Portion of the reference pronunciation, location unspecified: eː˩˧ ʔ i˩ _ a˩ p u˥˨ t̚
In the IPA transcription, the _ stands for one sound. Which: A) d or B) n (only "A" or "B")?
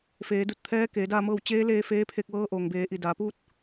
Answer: A